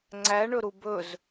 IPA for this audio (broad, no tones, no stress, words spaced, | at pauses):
ŋ͡ǀæɳɵɾu bɵz